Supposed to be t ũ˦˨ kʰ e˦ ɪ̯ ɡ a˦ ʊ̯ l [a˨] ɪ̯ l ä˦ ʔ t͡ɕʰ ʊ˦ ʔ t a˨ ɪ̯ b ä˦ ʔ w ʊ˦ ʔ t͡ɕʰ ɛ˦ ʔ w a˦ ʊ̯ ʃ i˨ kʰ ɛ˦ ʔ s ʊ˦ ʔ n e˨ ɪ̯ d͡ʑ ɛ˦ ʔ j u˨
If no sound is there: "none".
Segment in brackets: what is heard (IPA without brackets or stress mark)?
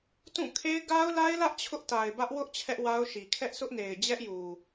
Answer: a˦